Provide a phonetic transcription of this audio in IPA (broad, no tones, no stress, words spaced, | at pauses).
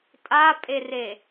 tʼapʼere